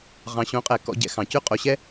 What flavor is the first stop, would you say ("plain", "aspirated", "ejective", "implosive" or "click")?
ejective